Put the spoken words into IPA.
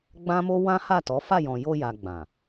ɡ͡bã˦mo˦ wã˦ha˦˨tɔ˨˦ fa˦˨jɔ̃˨jo˧ja˨ ɡ͡bã˨

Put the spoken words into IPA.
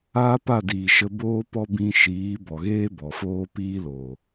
aː˦pa˦˨ diː˨ʃə˧ boː˦pɔ˦ bĩ˧ʃiː˨˦ bɔ˨ɣeː˦bɔ˨ foː˦piː˦lo˨

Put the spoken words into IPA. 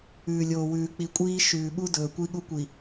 ʉː˨lʲoː˨wʉː˨k͡pi˨ kʷʼiː˦ ʃʉː˨ɓu˦dɵː˨ kʷi˦ɠu˦ kʷi˨

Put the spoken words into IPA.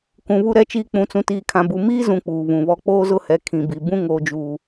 kũ˨ βu˦ɾɛ˦t͡ʃiː˦ k͡pũ˨t͡sũ˨tiː˨kʰã˨ bu˨ miː˦zũ˨ k͡puː˨βũ˨βɔ˦ k͡poː˦zʊ˦hɛ˨ kʰĩ˨bi˨bũ˦ ŋoː˨d͡ʒuː˨

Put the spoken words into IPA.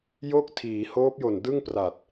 jo˥˩k̚tʰiː˩˦ hoː˦˥p̚jo˨˩ndɯ˥˩ŋ pra˨˩t̚

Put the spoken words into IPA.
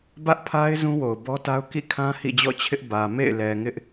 bä˦ʔpʰa˦ɪ̯ zũ˦wo˨ʊ̯ bɔ˦ta˦ʊ̯ kḭ˦˨kʰã˦ hḭ˦˨d͡ʑɔ̰˦˨t͡ɕʰɪ˦ʔ bä˨ mḛ˦˨ɪ̯lɛ˨ŋɪ˦ʔ

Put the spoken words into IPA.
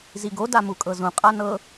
ziɡo damukʼɤzũ qʼanɤ

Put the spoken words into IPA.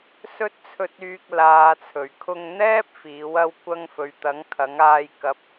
sɵ˥t̚t͡sʰɵ˧t̚yː˧k̚ laː˨t͡sʰɵ˨˩ɥkʰʊ˧ŋn̪ɛː˥p̚ fiː˨˥wɐ˥wkʷɐ˥ŋ fɵ˨ɥt̪ɐ˨˥ŋ kʰɐ˨˥ŋaː˧j kɐ˨p̚

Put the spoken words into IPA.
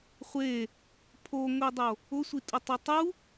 χʷe | pʰoŋʷidˤo | ʊsʷitʼʊtˤo tˤu

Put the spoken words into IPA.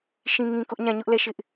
ʃĩ˦ŋĩ˦kʊ˦ʔ ɲã˦˨ɲʊ˦ʔlɛ˦˨ ʃɪ˦ʔ

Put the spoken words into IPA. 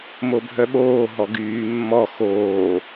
mobʱœɓoː ɦɔɡyː mːɔ xoː

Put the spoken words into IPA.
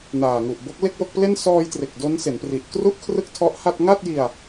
naː˨˩ŋu˨˩ʔbo˦˥k̚ le˥˩k̚wo˥˩k̚ple˥˩n sɔː˧jtre˨˩k̚ do˦˥nse˩˦npri˨˩ʔ kru˥˩ʔkʰrɯ˥˩k̚tʰɔ˦˥ʔha˥˩t̚ ŋa˥˩t̚ji˧a̯

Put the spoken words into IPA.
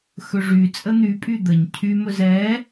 xɵʐy t͡sʼən̪ypʼy d̪əɲ cʰymɵz ɛ

